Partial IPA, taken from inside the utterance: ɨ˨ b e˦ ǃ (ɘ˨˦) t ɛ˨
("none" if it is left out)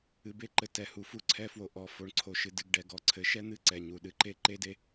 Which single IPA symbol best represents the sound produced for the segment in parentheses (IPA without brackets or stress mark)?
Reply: ɘ˨